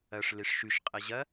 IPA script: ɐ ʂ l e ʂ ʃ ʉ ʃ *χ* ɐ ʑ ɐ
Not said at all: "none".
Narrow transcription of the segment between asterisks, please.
qʼ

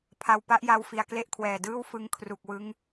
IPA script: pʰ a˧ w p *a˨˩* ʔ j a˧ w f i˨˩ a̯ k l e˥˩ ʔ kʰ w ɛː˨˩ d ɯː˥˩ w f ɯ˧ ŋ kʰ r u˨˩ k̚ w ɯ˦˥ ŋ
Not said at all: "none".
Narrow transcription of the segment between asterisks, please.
a˦˥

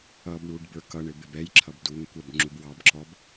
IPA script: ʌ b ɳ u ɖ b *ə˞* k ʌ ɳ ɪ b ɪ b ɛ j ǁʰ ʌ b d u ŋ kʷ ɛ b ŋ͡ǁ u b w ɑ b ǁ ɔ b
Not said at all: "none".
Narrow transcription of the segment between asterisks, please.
ə˞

